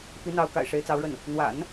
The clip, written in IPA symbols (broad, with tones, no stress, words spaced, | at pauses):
pi˧˥n̪ɑ˧˥ʊ̯ ka̰˨˩ɪ̯ʂe˧˥ɪ̯t͡sɑ˧˥ʊ̯ɻə˥˩n | n̪wa̰˨˩˦n